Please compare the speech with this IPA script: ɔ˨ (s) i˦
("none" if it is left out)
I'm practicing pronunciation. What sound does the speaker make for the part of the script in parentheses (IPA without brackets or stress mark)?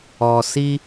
s